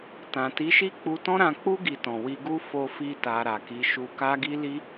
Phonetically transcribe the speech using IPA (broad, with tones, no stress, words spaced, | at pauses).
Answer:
tã˨ti˨˦ʃi˦ k͡pu˧tɔ̃˦ɾã˧k͡pu˦ ɡi˧tɔ̃˨ wi˧ɡu˦ fo˧fi˧ta˨ ɾa˨ki˨˦ ʃu˧ ka˦ɡi˦li˦